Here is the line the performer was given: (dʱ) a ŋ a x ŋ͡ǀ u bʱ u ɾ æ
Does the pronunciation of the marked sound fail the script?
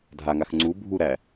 no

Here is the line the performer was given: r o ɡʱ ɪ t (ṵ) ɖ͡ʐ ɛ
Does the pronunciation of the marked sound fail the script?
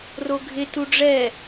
yes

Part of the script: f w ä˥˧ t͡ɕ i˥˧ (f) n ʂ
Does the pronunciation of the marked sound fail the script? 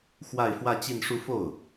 yes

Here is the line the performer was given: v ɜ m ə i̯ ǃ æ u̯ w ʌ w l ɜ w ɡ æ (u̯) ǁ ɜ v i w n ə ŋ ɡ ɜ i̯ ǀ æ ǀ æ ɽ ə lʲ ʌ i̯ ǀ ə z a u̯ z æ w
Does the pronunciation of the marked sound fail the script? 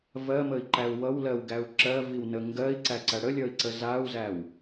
no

